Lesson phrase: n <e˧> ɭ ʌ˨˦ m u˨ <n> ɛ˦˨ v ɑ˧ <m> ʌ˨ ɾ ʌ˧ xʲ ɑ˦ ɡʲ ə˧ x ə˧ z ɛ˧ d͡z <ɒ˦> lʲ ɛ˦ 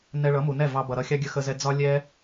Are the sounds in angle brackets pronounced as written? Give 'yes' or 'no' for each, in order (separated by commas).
no, yes, no, yes